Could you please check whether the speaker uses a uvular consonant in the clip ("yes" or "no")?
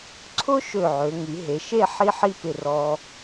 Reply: no